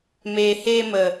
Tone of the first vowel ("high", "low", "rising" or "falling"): low